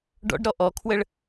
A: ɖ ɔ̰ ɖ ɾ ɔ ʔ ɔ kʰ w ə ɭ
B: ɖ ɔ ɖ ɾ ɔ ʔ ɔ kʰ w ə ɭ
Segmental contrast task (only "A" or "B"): A